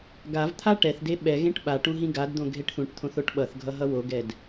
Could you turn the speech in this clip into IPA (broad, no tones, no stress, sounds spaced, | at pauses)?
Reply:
ɡ a v t̪ʰ a ʈ ɛ θ d e ɓ ɛ ɣ ẽ ʈ ɓ a ʈ ũ ɦ ĩ ɡ a d d̪ õ ɡʱ e ʈ θ ũ ʈ t̪ʰ õ θ o ʈ ɓ ʌ θ ɡʱ ʌ ɦ ʌ w o ɡ ɛ d